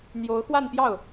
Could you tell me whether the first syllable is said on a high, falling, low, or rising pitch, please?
rising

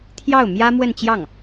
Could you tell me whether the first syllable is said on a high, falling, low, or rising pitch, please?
falling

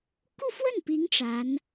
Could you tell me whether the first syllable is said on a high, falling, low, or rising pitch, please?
falling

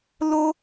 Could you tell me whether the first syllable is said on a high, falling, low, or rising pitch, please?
high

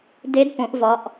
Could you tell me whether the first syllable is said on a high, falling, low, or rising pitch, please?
rising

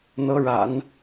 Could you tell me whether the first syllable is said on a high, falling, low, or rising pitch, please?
rising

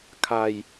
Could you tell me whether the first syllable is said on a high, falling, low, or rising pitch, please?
low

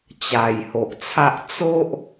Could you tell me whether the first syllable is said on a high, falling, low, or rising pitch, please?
low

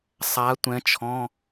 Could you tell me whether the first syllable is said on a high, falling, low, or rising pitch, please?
rising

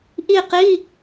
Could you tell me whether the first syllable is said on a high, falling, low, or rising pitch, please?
falling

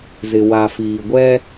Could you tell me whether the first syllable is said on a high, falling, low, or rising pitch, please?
low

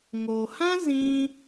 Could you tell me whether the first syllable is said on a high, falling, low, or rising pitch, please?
low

